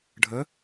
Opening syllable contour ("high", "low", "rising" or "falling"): rising